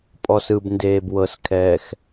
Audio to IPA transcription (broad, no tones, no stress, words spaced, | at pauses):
pʼɔsɯb ndeːbwɤskʰɛːx